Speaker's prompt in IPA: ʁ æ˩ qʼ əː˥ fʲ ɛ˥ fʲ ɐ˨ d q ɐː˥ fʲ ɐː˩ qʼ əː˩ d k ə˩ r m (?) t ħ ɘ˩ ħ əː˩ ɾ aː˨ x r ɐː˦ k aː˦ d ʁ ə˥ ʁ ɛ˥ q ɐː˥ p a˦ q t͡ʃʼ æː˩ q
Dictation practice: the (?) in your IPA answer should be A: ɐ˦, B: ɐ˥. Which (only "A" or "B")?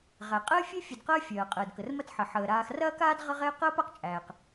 A